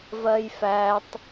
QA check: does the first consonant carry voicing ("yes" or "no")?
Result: yes